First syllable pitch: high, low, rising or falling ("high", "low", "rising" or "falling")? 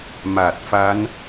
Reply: low